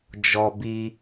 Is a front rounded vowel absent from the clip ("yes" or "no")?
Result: yes